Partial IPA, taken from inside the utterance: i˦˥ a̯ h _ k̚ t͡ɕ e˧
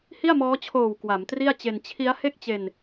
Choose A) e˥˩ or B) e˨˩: A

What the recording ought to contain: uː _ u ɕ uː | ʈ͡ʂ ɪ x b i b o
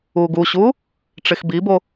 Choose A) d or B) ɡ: B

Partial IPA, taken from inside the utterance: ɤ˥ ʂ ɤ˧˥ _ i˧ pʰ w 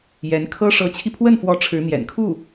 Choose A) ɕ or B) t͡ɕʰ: B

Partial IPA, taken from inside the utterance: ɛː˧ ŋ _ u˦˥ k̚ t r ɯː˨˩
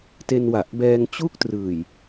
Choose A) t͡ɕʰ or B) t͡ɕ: B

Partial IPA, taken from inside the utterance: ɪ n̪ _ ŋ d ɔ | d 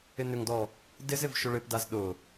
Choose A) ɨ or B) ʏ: B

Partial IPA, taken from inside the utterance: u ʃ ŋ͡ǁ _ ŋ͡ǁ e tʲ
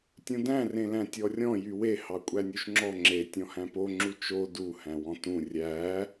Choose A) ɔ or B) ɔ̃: A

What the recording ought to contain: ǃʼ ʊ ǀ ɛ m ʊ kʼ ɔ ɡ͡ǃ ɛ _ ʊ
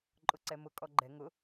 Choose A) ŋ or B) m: A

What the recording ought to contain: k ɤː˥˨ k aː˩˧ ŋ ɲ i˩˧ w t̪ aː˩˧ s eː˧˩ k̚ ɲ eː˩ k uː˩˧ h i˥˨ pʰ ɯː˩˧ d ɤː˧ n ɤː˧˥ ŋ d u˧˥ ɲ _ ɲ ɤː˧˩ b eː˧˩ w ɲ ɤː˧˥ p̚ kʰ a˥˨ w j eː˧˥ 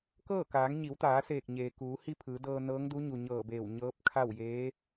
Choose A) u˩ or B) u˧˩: A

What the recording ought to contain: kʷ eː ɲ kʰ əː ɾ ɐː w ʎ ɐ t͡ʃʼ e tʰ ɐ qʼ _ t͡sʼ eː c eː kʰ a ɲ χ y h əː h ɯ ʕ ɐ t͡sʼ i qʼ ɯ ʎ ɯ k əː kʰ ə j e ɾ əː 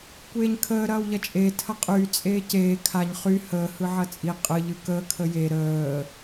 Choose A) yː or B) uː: A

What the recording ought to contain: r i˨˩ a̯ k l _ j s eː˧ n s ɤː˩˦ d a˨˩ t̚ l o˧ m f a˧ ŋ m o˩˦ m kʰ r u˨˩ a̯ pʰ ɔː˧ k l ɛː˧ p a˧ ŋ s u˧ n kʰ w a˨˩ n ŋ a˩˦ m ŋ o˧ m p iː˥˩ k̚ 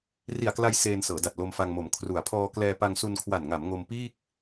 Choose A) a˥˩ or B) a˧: B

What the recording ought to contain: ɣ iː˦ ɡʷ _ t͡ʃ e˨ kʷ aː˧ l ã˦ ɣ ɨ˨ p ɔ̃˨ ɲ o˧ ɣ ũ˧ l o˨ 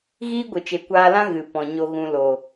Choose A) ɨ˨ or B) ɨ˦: A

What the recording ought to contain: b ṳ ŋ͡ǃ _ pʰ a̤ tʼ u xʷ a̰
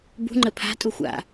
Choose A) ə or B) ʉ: A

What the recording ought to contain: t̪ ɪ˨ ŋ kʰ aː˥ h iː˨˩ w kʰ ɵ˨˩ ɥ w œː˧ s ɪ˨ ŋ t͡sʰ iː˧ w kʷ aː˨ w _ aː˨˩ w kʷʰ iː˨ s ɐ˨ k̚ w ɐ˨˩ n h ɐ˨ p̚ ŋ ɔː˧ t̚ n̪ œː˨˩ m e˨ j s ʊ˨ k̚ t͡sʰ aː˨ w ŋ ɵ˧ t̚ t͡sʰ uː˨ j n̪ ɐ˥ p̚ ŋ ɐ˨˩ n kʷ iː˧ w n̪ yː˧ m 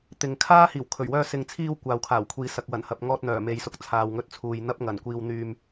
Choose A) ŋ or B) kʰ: B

